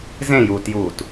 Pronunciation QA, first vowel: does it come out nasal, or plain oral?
nasal